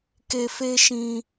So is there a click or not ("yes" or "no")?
no